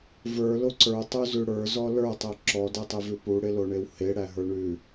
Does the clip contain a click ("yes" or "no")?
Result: yes